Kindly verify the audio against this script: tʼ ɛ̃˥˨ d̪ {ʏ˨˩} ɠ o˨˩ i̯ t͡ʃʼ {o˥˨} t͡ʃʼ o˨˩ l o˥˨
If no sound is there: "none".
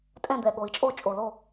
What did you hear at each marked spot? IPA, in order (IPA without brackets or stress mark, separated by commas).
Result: ɛ˨˩, o˥˨